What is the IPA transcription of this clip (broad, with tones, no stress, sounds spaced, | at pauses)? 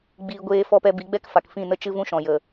ɡ͡b iː˧ ɡʷ eː˦ f ɔ˦ p ɛ˧ b i˨˦ ɡ͡b ɛ˦ k f a˨ k f ĩ˦˨ n ə˦ t͡ʃ ɨ˦ v ũ˦ ʃ ɔ̃˨ j ə˨